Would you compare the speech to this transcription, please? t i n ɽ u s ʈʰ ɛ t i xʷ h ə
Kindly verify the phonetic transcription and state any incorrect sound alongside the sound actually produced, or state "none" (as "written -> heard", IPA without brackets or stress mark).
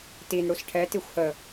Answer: none